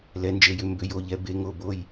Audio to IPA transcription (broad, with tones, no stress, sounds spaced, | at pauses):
l ɛ˩˧ n d͡ʒ e˩˧ j ʏ˩˧ m b ʏ˩˧ j o˩˧˩ ʎ ɛ˩˧ b e˩˧ ŋ o˩˧˩ b o˩˧˩ j